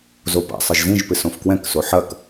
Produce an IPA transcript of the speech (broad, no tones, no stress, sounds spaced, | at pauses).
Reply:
z o p a̰ sˤ ɨ ʒ z ĩ ʒ p ɨ s õ f k w ɛ̃ k s o ħ ɐ k